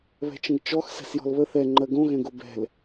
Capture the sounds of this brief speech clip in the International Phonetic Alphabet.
β ɛ̤ t͡ʃ ə̃ ɡ t͡ʃ ɔ x s ɛ̤ s j ɔ̤ l β ə θ ɛ ŋ͡ǃ ɜ ɡ õ ɣ ɛ̃ ɡ o b ɛ̤ l

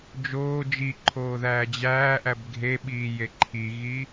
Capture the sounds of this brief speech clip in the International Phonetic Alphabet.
d͡ʒ oː d͡ʒ i ǃʰ oː ð æː d͡ʑ æː ʔ æ b ɡʱ e ɓ iː j e ǃʰ i ɣ iː

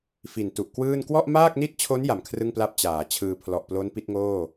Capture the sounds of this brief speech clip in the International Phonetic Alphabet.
f i˨˩ n t u˨˩ ʔ k w ɯː˥˩ n k w ɔ˥˩ ʔ m aː˥˩ k̚ n i˥˩ t̚ t͡ɕʰ o˦˥ n j a˨˩ m kʰ r ɯ˥˩ ŋ p l a˥˩ p̚ t͡ɕ aː˩˦ t͡ɕʰ ɯː˧ pʰ l ɔ˨˩ ʔ p l o˦˥ n p i˦˥ t̚ ŋ oː˥˩

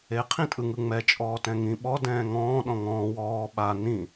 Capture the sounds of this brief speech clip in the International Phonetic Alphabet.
e qʰ ĩ tʼ ɯ ŋ ɯ ŋ͡m ɛ t͡ʃʼ ɔː t ɛ̃ ŋ ĩ ɓ ɔ d ɛ̃ː ŋ ɔ̃ː ɗ ɔ̃ ŋ ɔ̃ː w ɔː ɓ a n ĩ

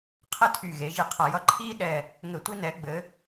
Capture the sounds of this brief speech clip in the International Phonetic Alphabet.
qʰ ɘ˦ tʰ y˨˩ ɣ e˩˧ ʒ i˨˩ qʰ ʌ˨˩ j ʌ˦ ǃʰ iː˦ ɗ ɛ˨˩ | ŋ ɘ˧˩˧ tʷ i˦ n ɛ˩˧ ɡ͡b ɘ˩˧

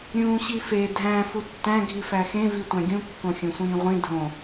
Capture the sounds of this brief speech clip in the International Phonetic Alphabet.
ɾʲ ũː ɕ i f e dʱ æ̃ f u tː æ̃ ɡʱ i f æ x ẽ v i tʷ æ̃ ɡʲ ũ kː õ xʲ õ sʷ ĩː ʁʷ ĩ dʱ õ

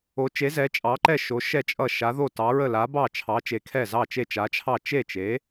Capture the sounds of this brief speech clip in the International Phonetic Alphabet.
o˨˥ t͡ʃ e˨˥ z ɛ˨˥ t͡ʃʼ ɑ˨˥ ǃ ɛ˥˩ ʃ o˨˥ ʃ ɛ˥˩ t͡ʃʼ ʌ˥˩ ʃ a˨˥ ð o˥˩ t ɑ˨˥ ɹ ə˥˩ l a˨˥ b ɑ˥˩ t͡ʃʰ ɑ˨˥ t͡ʃ e˨˥ kʰ ɛ˥˩ z ɑ˥˩ t͡ʃ e˥˩ t͡ʃ a˨˥ t͡ʃʰ ɑ˥˩ t͡ʃ e˥˩ t͡ʃ e˨˥

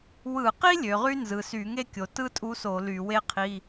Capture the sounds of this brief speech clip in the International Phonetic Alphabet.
w ɯ˧˩˧ q i˥ lʲ ø˩˧ ʁ y˥ n z ɯ˩˧ s y˧˩˧ ŋ e˥ kʲ o˩˧ t ɯ˥ tʼ u˧˥ s o˧˩˧ l y˧˩˧ w e˥ qʰ i˧˥˧

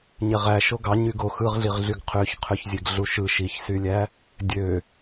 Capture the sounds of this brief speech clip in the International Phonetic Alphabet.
ɲ e ʁ æ ʃ o ɡ ɑ ɲ y ɡ o x ɯ ʁ ɮ i ʁ ɮ y ɡ qʰ ø ç qʰ ø ç zʲ e ɡ ɮ u ʃ ɯ ʃ i ç s y lʲ æ | dʲ ø

